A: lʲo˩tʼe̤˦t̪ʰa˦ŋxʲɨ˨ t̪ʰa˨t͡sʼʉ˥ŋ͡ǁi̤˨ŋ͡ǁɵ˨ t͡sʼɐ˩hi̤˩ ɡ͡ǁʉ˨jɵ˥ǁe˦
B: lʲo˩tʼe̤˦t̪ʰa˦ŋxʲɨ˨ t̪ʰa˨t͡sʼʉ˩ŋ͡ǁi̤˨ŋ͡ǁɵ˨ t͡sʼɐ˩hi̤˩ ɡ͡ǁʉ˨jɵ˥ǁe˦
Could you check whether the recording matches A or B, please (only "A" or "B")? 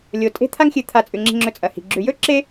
B